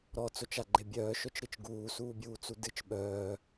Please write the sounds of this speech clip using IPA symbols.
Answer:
ɾ ɔ t͡s o t͡ʃ a ɡ͡ǃ e bʲ œː ʃ œ t͡ʃ ɾ ɨ t͡ʃ ɡ uː s uː bʲ uː t͡s u d ɨ t͡ʃ ɓ œː

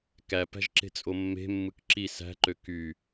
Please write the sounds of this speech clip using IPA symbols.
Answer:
k æ p æ̤ ʒ ǁ e̤ t͡sʼ o mː e̤ mː ɯ k ǁ i s æ̤ ǃ ø k y

